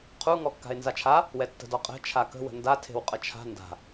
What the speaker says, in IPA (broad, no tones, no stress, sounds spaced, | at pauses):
qʰ u ŋ ɔ kː a̤ e̯ n z a t͡ʃʰ a | w ɛ tː ə̤ d ɔ qʼ ɛ̤ t͡ʃʰ a k ə̤ w ə̤ n d a tʰ e̤ w qʼ ə t͡ʃʰ a̤ n d a̤